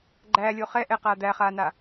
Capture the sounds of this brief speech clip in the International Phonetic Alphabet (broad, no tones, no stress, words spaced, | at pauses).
ɡ͡ǃæːlʲo χɛʔɛqaː d̪æχaːna